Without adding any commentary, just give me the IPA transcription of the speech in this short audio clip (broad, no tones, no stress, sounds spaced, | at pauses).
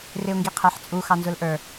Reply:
r ɪ ʊ̯ ŋ ɡ i qʰ æ ħ t͡sʼ u x ɑ n z ʊ l ʔ ə˞